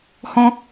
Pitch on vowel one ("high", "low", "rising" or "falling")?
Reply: high